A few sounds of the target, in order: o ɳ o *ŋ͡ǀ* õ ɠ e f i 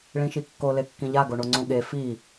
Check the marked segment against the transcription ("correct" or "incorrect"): correct